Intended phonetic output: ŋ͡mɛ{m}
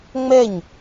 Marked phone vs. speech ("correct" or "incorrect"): incorrect